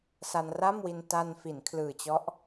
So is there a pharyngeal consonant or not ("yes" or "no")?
no